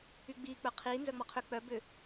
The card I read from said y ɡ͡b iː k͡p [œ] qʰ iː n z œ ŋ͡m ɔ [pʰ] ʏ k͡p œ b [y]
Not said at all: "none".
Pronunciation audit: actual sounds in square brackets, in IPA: œ, qʰ, ʏ

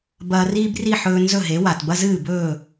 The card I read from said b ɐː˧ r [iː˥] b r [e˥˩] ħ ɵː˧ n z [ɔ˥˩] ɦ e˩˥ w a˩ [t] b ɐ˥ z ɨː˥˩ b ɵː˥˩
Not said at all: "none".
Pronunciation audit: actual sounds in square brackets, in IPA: iː˥, i˥˩, ɵ˥˩, t

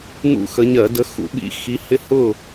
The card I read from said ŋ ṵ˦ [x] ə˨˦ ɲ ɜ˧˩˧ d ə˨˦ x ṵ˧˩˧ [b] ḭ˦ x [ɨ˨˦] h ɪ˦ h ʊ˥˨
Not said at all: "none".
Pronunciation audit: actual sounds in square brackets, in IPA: x, ɓ, i˨˦

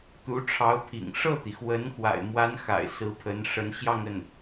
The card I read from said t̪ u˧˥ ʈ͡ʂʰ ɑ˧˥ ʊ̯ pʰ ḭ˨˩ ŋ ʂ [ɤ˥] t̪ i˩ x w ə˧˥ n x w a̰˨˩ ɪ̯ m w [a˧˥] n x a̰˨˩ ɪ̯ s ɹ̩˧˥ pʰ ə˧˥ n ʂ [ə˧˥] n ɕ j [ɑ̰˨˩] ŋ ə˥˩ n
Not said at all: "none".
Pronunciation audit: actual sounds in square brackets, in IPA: ɤ˥˩, a˧˥, ə˧˥, ɑ˥˧

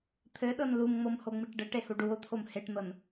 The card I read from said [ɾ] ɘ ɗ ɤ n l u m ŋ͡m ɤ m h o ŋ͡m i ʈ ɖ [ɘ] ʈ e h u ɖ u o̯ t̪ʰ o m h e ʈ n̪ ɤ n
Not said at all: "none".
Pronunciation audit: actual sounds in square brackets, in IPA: t̪ʰ, ɘ

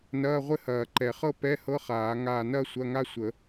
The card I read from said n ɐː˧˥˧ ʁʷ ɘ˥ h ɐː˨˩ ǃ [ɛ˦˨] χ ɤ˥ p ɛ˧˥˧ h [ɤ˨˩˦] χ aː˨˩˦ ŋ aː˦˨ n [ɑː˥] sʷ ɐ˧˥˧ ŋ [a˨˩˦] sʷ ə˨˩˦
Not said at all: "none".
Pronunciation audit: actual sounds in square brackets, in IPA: ɛ˨˩˦, ɤ˧˥˧, ɐː˥, a˥

